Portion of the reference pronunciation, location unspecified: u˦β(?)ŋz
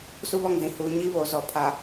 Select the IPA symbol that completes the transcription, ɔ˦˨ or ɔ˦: ɔ˦˨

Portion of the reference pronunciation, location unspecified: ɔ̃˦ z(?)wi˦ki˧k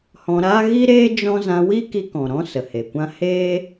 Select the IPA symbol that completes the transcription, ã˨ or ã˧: ã˧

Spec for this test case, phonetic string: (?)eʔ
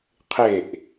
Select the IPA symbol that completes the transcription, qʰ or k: qʰ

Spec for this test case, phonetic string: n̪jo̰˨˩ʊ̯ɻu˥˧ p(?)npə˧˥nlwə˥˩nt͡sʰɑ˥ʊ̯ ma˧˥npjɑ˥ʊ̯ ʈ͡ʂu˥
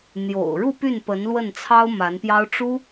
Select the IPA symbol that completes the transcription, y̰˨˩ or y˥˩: y˥˩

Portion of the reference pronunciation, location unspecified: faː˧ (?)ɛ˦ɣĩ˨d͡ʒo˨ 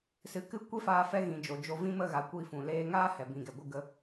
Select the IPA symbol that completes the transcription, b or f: f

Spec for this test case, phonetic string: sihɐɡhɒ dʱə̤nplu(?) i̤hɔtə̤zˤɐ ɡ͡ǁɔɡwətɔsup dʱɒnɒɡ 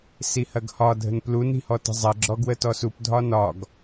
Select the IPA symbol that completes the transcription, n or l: n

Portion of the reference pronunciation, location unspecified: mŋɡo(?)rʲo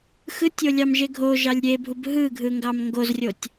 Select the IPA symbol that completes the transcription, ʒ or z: z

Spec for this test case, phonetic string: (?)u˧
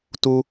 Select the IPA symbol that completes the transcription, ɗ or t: t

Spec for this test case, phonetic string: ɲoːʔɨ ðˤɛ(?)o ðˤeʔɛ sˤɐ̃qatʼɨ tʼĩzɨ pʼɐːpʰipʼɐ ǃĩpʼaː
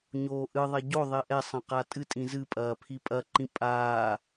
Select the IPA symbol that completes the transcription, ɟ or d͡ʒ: ɟ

